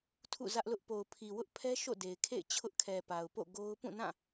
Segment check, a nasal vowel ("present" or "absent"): present